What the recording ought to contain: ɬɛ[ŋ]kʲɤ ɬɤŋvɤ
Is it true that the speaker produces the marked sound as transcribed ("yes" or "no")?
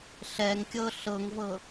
yes